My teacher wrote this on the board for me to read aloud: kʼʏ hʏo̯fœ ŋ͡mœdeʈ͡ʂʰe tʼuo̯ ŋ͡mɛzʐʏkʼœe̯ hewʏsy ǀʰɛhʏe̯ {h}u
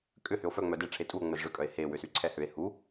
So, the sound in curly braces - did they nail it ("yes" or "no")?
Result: yes